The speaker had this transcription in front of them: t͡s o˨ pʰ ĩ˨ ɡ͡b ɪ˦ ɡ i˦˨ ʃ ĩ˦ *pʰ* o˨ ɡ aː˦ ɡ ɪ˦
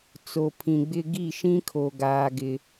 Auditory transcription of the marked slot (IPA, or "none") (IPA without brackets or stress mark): kʰ